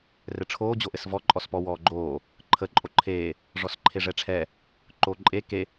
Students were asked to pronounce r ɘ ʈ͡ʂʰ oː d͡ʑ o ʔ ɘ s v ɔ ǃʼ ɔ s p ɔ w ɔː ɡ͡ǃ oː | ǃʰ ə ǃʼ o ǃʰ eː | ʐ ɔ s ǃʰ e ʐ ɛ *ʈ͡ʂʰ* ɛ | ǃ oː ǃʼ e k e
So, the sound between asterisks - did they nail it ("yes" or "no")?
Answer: yes